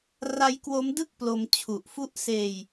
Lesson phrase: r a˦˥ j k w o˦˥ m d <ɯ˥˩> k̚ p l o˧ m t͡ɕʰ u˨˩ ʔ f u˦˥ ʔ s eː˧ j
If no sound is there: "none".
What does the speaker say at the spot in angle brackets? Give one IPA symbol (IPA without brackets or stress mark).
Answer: ɯ˥˩